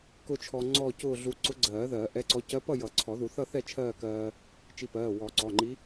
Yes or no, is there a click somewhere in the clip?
yes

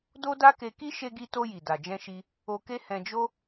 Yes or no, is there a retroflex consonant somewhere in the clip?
no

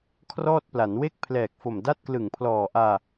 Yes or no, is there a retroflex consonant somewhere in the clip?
no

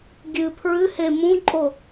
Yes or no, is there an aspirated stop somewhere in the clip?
yes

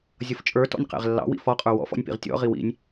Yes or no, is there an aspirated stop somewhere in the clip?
no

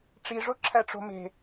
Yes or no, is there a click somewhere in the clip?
yes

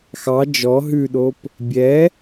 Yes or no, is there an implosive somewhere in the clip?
yes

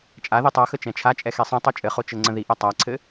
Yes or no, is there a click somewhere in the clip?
yes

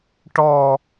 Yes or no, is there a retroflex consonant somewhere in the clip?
yes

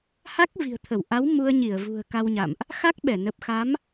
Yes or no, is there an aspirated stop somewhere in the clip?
yes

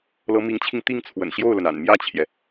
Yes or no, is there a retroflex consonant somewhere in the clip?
no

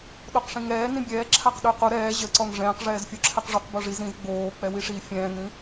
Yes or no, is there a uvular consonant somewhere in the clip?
yes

